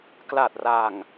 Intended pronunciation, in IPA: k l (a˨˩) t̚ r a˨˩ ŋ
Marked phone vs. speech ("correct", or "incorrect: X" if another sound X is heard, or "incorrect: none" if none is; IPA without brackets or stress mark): correct